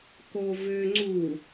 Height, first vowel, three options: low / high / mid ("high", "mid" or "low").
mid